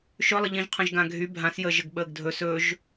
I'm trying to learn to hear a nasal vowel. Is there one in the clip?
yes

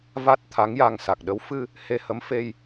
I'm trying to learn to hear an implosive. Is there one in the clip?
yes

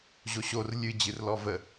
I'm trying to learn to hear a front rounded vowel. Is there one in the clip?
no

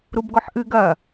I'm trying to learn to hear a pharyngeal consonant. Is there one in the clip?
yes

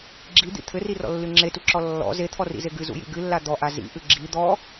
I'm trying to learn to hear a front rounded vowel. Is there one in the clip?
no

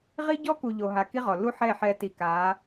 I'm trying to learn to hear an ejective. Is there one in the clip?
no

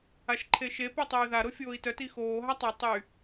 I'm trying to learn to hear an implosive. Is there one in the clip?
no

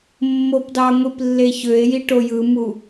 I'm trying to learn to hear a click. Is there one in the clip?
no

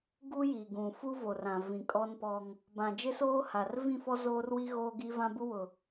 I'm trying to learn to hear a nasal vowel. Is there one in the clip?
yes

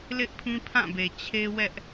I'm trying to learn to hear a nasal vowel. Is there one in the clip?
yes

